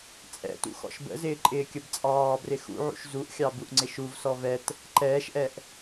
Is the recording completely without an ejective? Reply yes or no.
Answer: no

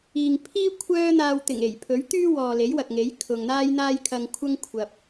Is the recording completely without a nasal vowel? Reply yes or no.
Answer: yes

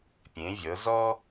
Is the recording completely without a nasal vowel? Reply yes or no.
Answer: no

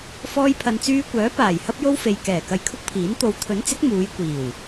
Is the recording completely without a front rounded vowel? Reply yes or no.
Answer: no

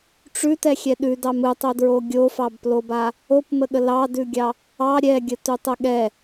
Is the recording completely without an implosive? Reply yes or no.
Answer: no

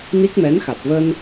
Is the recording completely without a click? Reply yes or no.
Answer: yes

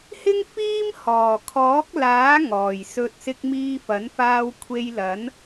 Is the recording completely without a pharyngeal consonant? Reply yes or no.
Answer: yes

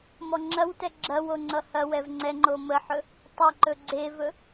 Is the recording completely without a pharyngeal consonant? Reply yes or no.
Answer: no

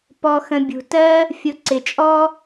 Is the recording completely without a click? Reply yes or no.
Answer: no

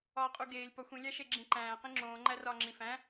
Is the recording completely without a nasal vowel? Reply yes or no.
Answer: no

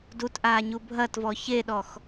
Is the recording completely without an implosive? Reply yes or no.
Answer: no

